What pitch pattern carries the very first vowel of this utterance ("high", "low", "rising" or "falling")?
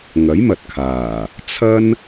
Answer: rising